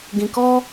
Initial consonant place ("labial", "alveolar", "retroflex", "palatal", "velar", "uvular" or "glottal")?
velar